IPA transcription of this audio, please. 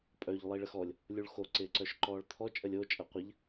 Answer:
pʼ œ ʎ lˠ i ɭ ə x ɔ lʲ | lʲ u ɭ x o ǀ ɪː ǀ œ ʃ ǃ ɔː ɭ t̪ʰ ɔ t͡ʃʼ ə lʲ o t͡ʃʼ ɐ qʷ ə ʎ

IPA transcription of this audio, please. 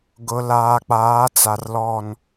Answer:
ɡ ʊ˨ l aː˨ k͡p aː˨˦ t͡s a˨ r l ɔ˦˨ n

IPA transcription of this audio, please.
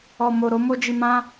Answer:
ɔ˨ m o˨ ɾ o˨˦ m o˧ d͡ʒ i˨ m ã˧

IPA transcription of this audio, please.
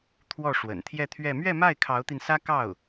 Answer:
t̪ʰ w ɔ˥˩ ʂ w ə̰˨˩ n t̪ʰ j ɛ˥˧ t̪ʰ ɥ ɛ˥˧ m ɥ ɛ˥˧ m a˥˩ ɪ̯ kʰ ɑ˧˥ ʊ̯ t̪ i˧ n s ä˥ k ɑ˥˩ ʊ̯

